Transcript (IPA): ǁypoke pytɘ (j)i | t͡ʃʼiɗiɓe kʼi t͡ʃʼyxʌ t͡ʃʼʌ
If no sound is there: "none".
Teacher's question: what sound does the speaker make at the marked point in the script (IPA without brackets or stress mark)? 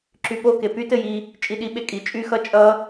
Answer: j